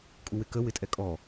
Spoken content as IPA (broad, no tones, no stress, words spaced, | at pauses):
kʼuwɪkə wɪtʼɛkʼɔ